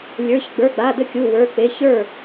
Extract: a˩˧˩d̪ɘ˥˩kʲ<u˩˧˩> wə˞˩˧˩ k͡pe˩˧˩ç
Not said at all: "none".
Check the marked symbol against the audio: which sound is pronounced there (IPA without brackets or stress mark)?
u˩˧˩